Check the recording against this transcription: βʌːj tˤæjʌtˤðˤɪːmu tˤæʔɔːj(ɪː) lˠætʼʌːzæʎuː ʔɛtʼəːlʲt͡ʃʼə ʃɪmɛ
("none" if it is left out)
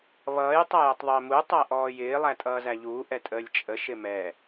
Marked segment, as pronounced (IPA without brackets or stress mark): ɪː